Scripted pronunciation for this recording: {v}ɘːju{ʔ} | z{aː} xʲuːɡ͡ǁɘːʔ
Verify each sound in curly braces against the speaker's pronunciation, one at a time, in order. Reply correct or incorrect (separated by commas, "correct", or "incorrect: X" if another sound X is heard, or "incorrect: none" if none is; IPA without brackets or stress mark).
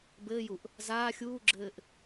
incorrect: b, correct, correct